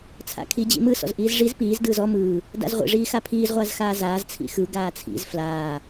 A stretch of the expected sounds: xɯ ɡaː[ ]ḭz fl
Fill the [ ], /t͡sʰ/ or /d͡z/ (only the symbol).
t͡sʰ